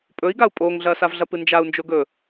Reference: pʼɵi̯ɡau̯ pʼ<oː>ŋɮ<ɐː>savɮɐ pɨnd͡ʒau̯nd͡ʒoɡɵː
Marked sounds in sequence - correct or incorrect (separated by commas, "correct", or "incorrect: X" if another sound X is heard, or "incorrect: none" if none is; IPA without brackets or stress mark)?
correct, correct